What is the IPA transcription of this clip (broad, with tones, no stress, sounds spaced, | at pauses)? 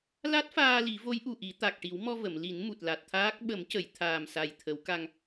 l a˦˥ t̚ f aː˧ l i˨˩˦ v o˧˥ j ʔ u˨˩ ʔ i˨˩˦ t̪ a˨˩ k̚ ʈ i˨˩˦ w m ɔ˧ v ə˨˩˨ m l i˨˩˦ n m u˨˩ t̚ l a˨˩ t̚ t̪ʰ aː˦˥ k̚ ɓ ə˨˩˦ m c ə˨˩˨ j t̪ʰ aː˨˩ m s a˨˩ j t̪ʰ ə˨˩˦ w k a˧ ŋ